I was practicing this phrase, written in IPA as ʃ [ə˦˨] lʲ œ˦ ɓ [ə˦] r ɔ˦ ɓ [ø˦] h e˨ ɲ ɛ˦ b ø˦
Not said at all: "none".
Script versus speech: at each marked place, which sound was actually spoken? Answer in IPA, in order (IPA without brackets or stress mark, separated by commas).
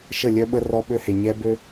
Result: ə˦˨, ə˦, ø˦